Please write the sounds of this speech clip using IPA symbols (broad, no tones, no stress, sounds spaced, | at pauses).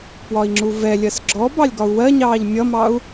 p w ɒ i̯ ŋ͡ǁ u v ɛ lʲ ɜ s ɡ͡ǁ ɔ b ɑ lʲ ɡ ɒ u̯ w ɜ ɲ ɑː ʎ mʲ ʌ m ɑ u̯